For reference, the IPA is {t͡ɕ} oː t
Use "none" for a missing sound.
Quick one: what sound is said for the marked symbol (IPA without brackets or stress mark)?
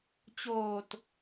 t͡ɕ